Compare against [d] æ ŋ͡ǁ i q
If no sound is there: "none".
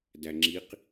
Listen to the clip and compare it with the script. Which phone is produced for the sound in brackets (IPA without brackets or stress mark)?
d